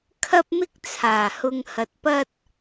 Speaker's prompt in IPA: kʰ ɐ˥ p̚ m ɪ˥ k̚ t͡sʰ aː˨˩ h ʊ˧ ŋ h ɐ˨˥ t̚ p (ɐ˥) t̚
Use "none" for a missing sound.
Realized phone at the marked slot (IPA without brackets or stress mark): ɐ˥